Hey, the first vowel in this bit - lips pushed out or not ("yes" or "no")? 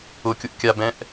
yes